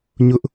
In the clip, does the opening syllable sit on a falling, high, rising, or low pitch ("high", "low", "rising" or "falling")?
high